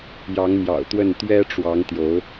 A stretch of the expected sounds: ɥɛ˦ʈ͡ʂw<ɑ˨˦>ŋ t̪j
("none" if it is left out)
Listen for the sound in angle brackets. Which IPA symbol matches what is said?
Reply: ɑ˨˦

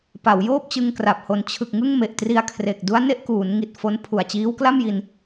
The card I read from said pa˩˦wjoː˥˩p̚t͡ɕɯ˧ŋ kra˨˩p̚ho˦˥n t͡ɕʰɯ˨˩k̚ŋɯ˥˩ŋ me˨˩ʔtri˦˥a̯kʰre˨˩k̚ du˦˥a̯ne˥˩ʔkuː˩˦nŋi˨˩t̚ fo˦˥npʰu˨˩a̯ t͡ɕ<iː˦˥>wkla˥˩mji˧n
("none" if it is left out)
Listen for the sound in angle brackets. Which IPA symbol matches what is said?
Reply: iː˦˥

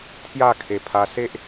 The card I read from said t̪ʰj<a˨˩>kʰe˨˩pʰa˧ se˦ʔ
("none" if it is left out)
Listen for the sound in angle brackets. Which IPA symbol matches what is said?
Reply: a˥˧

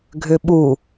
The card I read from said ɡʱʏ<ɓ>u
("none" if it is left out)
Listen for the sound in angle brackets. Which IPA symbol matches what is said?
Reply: ɓ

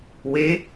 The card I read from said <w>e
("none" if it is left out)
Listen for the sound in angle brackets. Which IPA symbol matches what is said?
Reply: w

